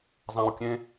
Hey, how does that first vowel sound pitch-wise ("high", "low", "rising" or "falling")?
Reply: low